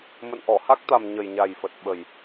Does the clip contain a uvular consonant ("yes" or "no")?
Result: no